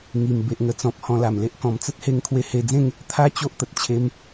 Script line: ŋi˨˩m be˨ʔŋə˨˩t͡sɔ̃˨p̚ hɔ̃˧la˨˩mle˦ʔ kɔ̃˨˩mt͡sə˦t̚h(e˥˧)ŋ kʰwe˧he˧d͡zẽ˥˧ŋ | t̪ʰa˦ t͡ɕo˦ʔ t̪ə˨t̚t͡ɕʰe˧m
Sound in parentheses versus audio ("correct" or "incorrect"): incorrect